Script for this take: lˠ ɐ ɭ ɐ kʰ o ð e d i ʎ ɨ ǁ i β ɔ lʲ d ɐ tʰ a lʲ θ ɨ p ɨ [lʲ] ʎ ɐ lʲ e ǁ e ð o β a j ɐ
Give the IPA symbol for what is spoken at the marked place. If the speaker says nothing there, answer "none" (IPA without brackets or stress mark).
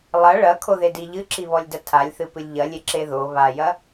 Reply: lʲ